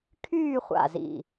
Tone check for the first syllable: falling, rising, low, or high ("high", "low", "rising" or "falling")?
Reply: falling